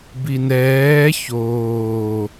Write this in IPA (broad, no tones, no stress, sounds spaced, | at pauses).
b i n ɛː ç oː